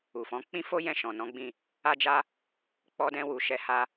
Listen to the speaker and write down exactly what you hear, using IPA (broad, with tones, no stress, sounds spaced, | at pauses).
u˨ f ɔ̃˨˦ k͡p ĩ˦ f o˦ j ɛ̃˦˨ ʃ ɔ̃˨ n ɔ̃˨˦ ɡ͡b ĩ˦˨ | a˦ d͡ʒ a˦ | k͡p ɔ˧ d ɛ̃˧ w u˨ ʃ ɛ˧ h a˧